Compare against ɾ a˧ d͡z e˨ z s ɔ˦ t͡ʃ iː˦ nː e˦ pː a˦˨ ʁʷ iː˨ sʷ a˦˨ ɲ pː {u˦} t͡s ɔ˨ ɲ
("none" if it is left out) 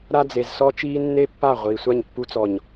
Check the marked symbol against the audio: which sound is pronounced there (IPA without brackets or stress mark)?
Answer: u˧